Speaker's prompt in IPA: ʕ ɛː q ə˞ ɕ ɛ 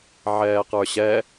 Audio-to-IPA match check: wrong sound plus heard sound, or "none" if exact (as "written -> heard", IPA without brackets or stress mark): none